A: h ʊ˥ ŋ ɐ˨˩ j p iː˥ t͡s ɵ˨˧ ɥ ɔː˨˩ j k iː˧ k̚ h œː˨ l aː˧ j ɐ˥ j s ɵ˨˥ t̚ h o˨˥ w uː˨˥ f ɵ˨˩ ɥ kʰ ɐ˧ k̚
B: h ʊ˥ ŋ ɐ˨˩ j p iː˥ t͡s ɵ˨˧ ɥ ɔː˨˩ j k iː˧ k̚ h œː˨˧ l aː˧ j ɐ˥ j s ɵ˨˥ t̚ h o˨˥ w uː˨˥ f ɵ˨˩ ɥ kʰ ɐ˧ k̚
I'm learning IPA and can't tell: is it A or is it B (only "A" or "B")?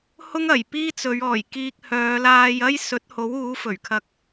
B